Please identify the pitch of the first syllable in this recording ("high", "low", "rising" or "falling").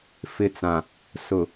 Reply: low